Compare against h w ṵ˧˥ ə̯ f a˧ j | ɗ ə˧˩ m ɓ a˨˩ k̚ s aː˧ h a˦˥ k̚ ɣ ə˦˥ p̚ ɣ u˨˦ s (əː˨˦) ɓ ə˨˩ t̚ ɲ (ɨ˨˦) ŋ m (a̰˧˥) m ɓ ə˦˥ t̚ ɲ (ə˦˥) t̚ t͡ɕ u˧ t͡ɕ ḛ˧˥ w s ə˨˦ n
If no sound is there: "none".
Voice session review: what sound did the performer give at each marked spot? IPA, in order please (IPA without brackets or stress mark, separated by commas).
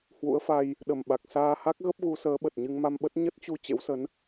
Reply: əː˨˦, ɨ˧, a˧, ə˦˥